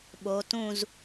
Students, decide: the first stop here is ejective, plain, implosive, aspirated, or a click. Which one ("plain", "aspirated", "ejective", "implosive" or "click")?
implosive